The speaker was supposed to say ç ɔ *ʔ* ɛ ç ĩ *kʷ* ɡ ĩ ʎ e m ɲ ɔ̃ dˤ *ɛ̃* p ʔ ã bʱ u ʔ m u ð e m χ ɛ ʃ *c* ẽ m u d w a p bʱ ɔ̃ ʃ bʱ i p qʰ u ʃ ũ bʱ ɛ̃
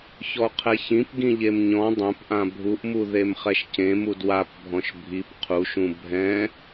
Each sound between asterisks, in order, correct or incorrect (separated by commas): incorrect, incorrect, correct, correct